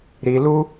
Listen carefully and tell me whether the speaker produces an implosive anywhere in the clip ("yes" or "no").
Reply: no